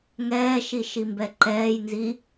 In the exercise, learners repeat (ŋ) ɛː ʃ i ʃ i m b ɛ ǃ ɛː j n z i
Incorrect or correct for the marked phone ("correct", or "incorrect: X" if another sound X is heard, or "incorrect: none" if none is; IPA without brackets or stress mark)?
correct